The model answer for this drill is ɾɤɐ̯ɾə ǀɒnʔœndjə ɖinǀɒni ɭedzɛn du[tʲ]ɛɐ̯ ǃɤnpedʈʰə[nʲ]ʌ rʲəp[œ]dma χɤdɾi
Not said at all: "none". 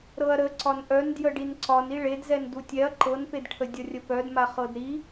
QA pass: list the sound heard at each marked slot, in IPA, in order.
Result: tʲ, dʲ, œ

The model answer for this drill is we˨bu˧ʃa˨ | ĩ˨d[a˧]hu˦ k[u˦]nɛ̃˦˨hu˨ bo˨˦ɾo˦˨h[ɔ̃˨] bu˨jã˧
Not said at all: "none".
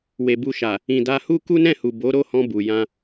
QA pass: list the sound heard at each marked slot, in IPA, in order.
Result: a˧, u˦, ɔ̃˧

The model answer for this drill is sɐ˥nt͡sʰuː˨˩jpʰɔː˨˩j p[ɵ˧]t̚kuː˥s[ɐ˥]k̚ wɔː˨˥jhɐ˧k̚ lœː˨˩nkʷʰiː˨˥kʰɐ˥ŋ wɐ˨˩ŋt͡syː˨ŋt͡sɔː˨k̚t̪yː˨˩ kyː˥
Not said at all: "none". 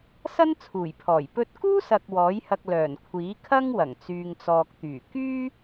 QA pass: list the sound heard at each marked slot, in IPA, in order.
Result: ɵ˧, ɐ˨

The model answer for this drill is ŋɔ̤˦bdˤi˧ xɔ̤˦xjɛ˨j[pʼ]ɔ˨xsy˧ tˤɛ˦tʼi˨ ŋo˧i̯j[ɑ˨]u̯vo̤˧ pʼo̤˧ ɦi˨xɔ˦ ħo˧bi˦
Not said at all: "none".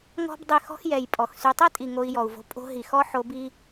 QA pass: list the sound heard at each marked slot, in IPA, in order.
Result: pʼ, ɔ˨

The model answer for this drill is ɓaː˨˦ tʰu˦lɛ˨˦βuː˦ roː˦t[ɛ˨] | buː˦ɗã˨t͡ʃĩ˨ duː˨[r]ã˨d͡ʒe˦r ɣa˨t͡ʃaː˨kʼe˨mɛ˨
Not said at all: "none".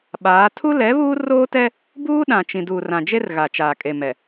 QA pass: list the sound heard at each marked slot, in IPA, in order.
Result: ɛ˦, r

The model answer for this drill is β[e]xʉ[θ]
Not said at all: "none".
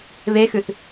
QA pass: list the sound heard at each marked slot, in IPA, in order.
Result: e, θ

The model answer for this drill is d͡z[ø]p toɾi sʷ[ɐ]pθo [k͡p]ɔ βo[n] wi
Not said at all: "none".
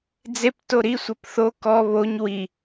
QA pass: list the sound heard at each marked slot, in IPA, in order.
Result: e, ɐ, k, ɲ

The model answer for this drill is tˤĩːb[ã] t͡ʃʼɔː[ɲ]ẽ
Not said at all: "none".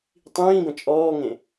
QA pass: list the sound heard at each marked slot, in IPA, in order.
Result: ə̃, ŋ

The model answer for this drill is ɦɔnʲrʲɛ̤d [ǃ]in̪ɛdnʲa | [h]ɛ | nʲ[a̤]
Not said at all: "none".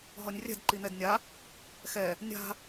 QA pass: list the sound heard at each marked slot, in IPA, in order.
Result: ǃ, x, a̤

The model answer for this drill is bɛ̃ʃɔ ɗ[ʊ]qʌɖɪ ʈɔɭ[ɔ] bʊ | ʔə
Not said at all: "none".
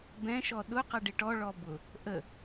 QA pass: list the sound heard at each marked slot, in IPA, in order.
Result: ʊ, ɔ

